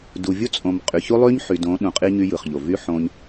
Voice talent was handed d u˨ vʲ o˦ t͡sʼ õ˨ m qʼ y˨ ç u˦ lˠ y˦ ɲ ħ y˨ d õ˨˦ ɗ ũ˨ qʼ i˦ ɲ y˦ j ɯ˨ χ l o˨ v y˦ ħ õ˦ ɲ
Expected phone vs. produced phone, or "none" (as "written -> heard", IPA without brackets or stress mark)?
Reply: l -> ʎ